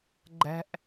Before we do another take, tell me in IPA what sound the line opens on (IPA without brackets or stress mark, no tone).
ɡ͡ǃ